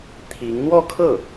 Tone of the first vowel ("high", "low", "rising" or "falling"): rising